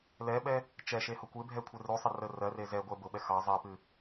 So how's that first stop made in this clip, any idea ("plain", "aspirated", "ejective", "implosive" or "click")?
implosive